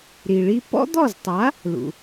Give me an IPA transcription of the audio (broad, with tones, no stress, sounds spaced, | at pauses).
ɾ i˩ ɭ i˧ p ɔ̰˥ d̪ ɔ˥˩ z tˤ a˩˥ | l ṵ˩